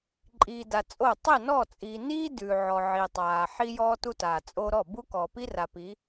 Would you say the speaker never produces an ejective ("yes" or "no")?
no